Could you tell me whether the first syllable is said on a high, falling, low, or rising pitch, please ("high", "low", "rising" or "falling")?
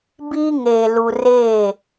high